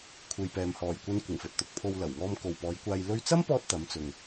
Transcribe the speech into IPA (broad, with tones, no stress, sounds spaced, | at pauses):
kʷʰ e˨ j p ɛː˨ m h ɔː˨˩ j kʷ ɐ˧ n kʷ ɪ˨˩ ŋ f ɵ˨ t̚ t̪ ʊ˧ k̚ pʰ o˧ w l ɐ˨˩ w ŋ ɔː˧ m k o˨ w p ɔː˨˧ j kʷ aː˧ j l ɵ˧ ɥ t͡s ɐ˥ m p ɔː˧ t̚ t̪ ɐ˨˧ m t͡s ʊ˨ ŋ